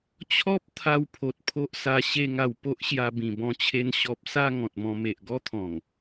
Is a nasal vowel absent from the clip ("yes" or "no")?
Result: no